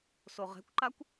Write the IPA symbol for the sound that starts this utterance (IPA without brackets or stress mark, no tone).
s